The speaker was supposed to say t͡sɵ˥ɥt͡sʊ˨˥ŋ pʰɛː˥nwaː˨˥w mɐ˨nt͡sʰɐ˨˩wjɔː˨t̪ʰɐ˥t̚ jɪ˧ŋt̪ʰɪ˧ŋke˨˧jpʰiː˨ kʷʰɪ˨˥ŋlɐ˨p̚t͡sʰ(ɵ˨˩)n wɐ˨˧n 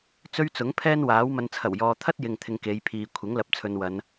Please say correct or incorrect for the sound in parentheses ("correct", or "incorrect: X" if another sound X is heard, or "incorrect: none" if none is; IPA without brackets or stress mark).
incorrect: ɵ˨